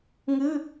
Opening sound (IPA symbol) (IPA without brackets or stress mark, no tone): ŋ